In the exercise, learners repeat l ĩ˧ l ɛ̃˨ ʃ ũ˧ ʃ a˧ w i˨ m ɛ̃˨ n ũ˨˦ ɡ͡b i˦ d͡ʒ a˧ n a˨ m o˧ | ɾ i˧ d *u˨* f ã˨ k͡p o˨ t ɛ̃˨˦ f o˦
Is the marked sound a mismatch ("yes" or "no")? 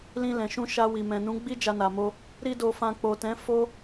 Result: yes